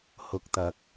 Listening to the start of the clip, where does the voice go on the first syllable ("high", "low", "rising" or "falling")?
low